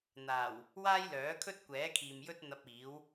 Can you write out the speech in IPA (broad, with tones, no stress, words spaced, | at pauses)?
n̪aː˨˩w | waː˥jlœː˨˥kʰɵ˥t̚ kʷɛː˨˥kʰiː˨m jɵ˥t̚n̪ɐ˧p̚ iː˨˥w